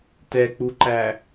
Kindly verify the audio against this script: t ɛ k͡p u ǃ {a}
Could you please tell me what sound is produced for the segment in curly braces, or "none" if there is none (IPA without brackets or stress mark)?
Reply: æ